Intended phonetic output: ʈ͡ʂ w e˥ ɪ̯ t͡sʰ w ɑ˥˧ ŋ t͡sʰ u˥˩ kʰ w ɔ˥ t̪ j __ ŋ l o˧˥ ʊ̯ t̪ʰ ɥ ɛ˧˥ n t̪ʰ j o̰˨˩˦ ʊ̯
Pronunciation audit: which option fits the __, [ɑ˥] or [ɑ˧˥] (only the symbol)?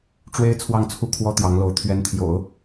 ɑ˧˥